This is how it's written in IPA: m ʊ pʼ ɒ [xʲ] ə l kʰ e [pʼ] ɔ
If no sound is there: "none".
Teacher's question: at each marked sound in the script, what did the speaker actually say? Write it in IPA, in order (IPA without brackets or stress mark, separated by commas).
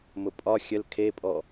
xʲ, pʼ